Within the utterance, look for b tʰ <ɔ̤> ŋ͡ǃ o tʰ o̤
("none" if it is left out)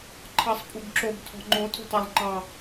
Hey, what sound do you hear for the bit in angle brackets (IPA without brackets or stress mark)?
ɔ̤